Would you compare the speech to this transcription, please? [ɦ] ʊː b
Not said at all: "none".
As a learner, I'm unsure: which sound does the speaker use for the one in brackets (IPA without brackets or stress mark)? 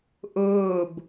ʔ